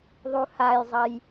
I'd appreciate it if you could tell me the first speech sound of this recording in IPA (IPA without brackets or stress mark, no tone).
ðˤ